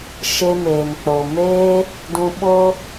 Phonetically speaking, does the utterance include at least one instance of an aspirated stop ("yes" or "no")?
no